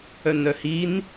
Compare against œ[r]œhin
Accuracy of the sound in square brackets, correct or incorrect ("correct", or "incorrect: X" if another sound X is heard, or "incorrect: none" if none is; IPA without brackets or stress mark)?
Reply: incorrect: n